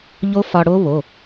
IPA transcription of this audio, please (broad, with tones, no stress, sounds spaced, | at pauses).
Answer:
ʎ o˦˥ f ɒ˧ ɽ o˦˥ β o˩˧˩